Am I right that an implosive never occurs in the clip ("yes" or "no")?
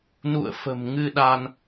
no